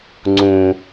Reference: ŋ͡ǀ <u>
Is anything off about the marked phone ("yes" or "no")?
yes